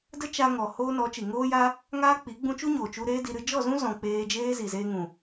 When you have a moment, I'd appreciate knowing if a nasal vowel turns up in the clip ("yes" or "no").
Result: yes